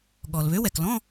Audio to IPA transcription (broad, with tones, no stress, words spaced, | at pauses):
ɠɔ˩l βø˨˥wɛ˩klɔ̃˧˥˧